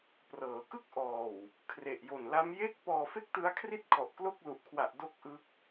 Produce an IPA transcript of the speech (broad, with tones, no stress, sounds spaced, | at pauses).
p r ɤː˩˦ k ɯ˥˩ k̚ ʔ ɔː˨˩ w | kʰ r e˨˩ ʔ j o˨˩ n l a˦˥ m j e˥˩ k̚ p ɔː˧ f e˥˩ k̚ t ɯ˦˥ a̯ kʰ r i˥˩ t̚ kʰ ɔ˨˩ ʔ k l o˥˩ k̚ l u˨˩ ʔ kʰ w a˨˩ ʔ d o˥˩ k̚ ʔ ɯ˦˥ k̚